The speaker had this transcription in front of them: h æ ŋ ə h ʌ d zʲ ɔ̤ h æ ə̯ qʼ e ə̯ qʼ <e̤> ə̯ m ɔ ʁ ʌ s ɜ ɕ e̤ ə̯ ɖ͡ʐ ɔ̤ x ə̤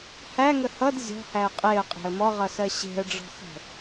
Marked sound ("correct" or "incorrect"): correct